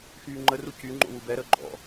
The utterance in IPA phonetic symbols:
xyːŋ͡ǃəru cyŋ͡ǃo̰ wubɛɾəː ɡ͡ǃɔ̰

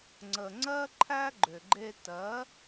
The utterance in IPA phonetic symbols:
ŋ͡ǀə˨ ŋ͡ǀɜ˦ǃʰæ˦ ɡ͡ǃʏ˨ɡ͡ǃe˧tɜ˨˦

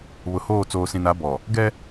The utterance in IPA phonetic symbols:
βʊ˨hoː˦˨ t͡soː˨sĩ˨na˨˦bɔ˨ | ɡɛ˦

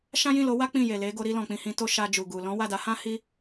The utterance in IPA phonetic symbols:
ʃã˦jĩ˦˨lo˨˦wa˦ k͡pĩ˦˨je˨le˨˦ ɡo˧ɾi˧ lɔ̃˨k͡pĩ˧ hĩ˧to˦ ʃa˧ d͡ʒu˨ɡu˨ lɔ̃˨˦wa˦˨da˨˦hã˦ hi˦

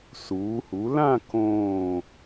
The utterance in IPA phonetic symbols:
suː˩˧hu˩˧ lã˥˧ kõː˧˩

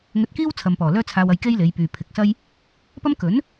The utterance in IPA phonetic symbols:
ŋɵ˧t̚kiː˥w t͡sʰɐ˨mpɔː˨˩ lœː˥t͡sʰaː˧wɐ˧j ke˥jle˨˧jpyː˨ pʰɪ˨k̚sɐ˥j | pɐ˥m kɵ˨˥n

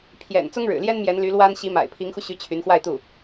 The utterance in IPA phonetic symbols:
pʰjɛ̰˨˩n t͡sʊ˥ŋɻɻ̩˨˩ljɛ˥n mjɛ˧˥nly˧˥lwa˥n ɕi˧˥ma̰˨˩ɪ̯ pʰi˧˥ŋxu˧ɕy˧˥ t͡ɕʰy˧˥nxwa˥˧ɪ̯t̪u˥˩

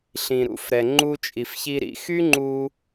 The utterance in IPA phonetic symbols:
ɬĩ˨ɾṵ˦˨fɾɛ˨ ŋ͡ǃu˧t͡ʃʼi˨fçi˧ ɾḭ˧xy˦ŋ͡ǃu˧

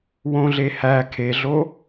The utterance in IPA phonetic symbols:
wõɮehæ kʰeɮo

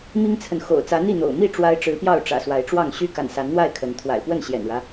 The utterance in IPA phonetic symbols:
mi˦ŋt͡sʰə˨n xo̰˨˩ʊ̯t͡sä˨˦n̪i˥˨n̪o̰˨˩ʊ̯ mi˥˨ ʈ͡ʂwa˦ɪ̯ʈ͡ʂɻ̩˨˦pjɑ˥˨ʊ̯ ʈ͡ʂä̰˨˩swa˨˦ɪ̯ʈ͡ʂwɑ˥˨ŋ ɕy˦ ka̰˨˩n sa˨˦nn̪wa˥˨ɪ̯ kʰə˨˦n t̪ʰwa̰˨˩ɪ̯pwə˥˨nɕjɛ̰˨˩nɻä˦

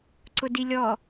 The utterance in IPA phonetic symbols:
ǀʊdilʲɔ

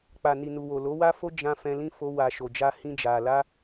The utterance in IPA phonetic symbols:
k͡pa˨ni˨ nu˨ wo˨lo˨˦wa˦fo˦ d͡ʒã˧ fɛ̃˧lĩ˦ fo˦wa˧ ʃo˨d͡ʒa˧hĩ˧ d͡ʒa˨la˧

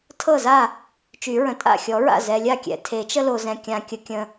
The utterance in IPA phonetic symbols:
tʰɤ˥˩za˥˩ | t͡ʃy˨˩˦ɹə̃˨ tʼa̰˥˩ xʲɔ˨˩˦ɹa̰˥˩ zɛ˨lʲa˥˩kʲɛ̰˨ tʰe˨˩˦t͡ʃə˦lo˨zɛ̃˨ kʲã˨kʲə˨˩˦kʲə̃˨

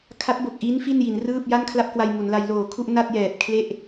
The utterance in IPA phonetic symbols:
kʰa˦˥t̚bo˨˩k̚ ʔi˦˥n fi˥˩nji˩˦nrɯː˥˩p̚ ja˥˩nkʰla˥˩p̚kwa˧j mu˩˦nla˧j loː˨˩kʰu˥˩ʔ na˥˩t̚jɛː˨˩p̚ kʰle˥˩ʔ

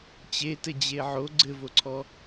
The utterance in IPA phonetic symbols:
t͡ɕetɘd͡ʑe ʕo ɡ͡ǀɘvoǀʰɔ

